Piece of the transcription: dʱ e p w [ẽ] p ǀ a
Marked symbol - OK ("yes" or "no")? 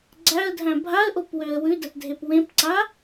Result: yes